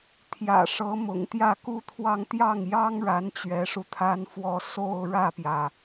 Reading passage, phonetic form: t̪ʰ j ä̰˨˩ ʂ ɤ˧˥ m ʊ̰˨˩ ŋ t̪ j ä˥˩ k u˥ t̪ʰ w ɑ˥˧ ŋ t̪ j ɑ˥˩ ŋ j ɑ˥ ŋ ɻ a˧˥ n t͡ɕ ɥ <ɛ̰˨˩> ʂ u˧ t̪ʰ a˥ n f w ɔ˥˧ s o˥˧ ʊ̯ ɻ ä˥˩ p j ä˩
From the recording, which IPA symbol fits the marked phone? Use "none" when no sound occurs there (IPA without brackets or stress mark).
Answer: ɛ˧˥